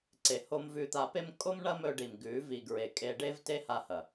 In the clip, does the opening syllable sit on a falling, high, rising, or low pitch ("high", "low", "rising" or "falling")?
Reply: low